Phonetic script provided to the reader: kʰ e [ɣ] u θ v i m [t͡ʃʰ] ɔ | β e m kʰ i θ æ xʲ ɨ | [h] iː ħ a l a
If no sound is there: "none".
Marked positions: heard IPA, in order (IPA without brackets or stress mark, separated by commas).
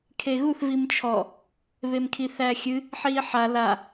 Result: ɣ, t͡ʃʰ, ħ